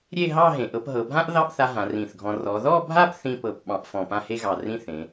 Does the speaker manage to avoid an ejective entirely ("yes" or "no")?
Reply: yes